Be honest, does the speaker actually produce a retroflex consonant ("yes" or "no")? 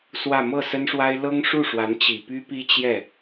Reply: yes